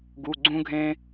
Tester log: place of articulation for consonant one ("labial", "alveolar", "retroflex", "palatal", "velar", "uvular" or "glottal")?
velar